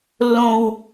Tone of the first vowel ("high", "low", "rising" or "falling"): high